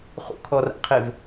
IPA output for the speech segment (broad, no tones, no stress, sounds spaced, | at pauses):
χ ṵ kʰ ɔ r a̰ qʰ e v